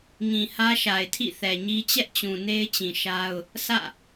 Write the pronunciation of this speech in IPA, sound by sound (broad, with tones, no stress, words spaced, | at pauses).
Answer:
ŋĩ˨hä˦ʃa˨ɪ̯tʰḭ˦˨ θɛ˨ɲi˦ t͡ɕɛ˦ʔt͡ɕũ˨ ne˦ɪ̯t͡ɕĩ˨ ʃa˦ʊ̯ | sä̰˦˨